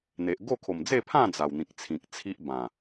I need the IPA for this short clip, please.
n̪ e˨ ʔ ɡ o˥˧ kʰ o˨˩ m d͡z e˥˧ pʰ ã˥˧ d͡z a˨˩ w n̪ ĩ˨ k̚ t͡sʰ ĩ˨ k̚ t͡sʰ i˦ ʔ b ã˨˩

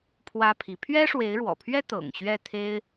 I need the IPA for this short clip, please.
pʰ w ä˥ pʰ i˧˥ pʰ ɥ ɛ˥ ʂ w e˧˥ ɪ̯ ɻ w ɔ̰˨˩ pʰ ɥ ɛ˥ t̪ ɤ̰˨˩ ŋ ɕ ɥ ɛ˥˩ t̪ʰ e˥ ɪ̯

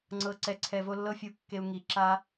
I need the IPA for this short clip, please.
ŋ͡ǀ ɤ˨ ǀ ɛ˨ ǀʰ ɛ˨ v o˧ lː ɤ˦ fʲ u˧ kː e˧ u̯ ŋ i˨ ǁ a˧

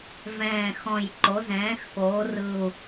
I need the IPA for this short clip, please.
v ɛ̃ː˨˩ x ɔ̃˨˩ j ǃ o˩˧ z ɛ̃ː˩˧ x k oː˩˧ r ɯ˨˩ u̯

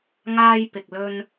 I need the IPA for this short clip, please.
ŋ aː˧ j p ɪ˨ k̚ l ɵ˧ n

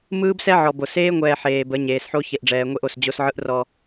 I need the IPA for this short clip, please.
m ɯː˦ b s ɛ˦ ʕ ɔ˨ b o˨ s eː˦ ŋʷ ɛː˨ ħ eː˨ b ə˨˦ ɲ eː˨ s ħ o˦ ç e˨ ʔ ɖ͡ʐ ɛː˨ ŋʷ e˦ ʔ o˨ s d͡ʑ o˦ s ʕ ɯ˦ ʔ r ɔ˦

